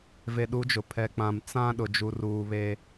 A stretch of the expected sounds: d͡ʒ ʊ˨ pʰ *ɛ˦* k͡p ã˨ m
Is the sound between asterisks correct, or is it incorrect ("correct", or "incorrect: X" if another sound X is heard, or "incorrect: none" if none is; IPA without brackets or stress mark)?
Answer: incorrect: ɛ˨